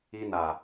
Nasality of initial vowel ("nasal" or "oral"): oral